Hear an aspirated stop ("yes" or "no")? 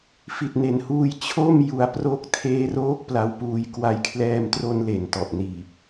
yes